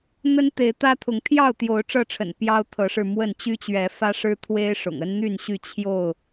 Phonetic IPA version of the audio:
n̪ə˦nt̪e˨˦ɪ̯t̪ä˦t̪ʰʊ˨˦ŋ t̪ʰjɑ˥˨ʊ̯t̪jo˨˦ʊ̯ ʈ͡ʂɤ˥˨ʈ͡ʂʰə̰˨˩n pjɑ˦ʊ̯t̪ʰɤ˨˦ʂɻ̩˧ mwə˥˨n t͡ɕy˦t͡ɕɥɛ˨˦fä˦ʂɻ̩˦ t̪ʰwe˦ɪ̯ʂʊ̰˨˩ŋ ə˦nn̪y˥˨nɕy˥˨ t͡ɕʰjo˥˨ʊ̯

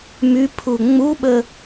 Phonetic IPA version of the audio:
mypʰu ŋ͡muɓə

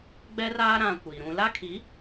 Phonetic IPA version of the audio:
ɡ͡bɛ˦raː˦ ɾã˨ kʷi˨ɾũ˦ la˦kʰi˨˦

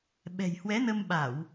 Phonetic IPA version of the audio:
ɓɛ̤˨˩jhwɛ˨˦nə˧m ɓa˧˩˨w

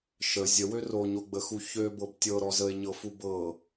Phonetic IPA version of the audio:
ʃə zʲəwø roɲoɡ͡bəxu çøbɤb tʲɤɾɔ zəe̯ɲɤfu bɤ

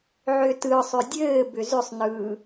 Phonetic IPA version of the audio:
ʕʏtɯsˤʏ dʲɘː bʏzʏsˤnɯː

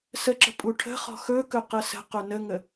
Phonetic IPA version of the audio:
səǁə̤ pʼuʈʰə̤χɔ̤ xɵkɵ qəsə̤qɵ nəŋə

